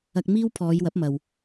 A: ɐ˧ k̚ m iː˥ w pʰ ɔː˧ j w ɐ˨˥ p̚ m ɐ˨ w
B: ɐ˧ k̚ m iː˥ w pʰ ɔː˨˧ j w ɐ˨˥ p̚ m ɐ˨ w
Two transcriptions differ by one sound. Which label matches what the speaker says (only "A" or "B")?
B